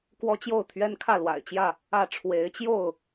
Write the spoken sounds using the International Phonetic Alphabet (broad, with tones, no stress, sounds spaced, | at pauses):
k w ɔ˦ t͡ɕ j o˥˨ ʊ̯ t̪ʰ ɥ ɛ˦ n kʰ ä˥˨ l w a̰˨˩ ɪ̯ t͡ɕ j ä˥˨ | ä˥˨ ʈ͡ʂʰ w e˨˦ ɪ̯ t͡ɕ j o˥˨ ʊ̯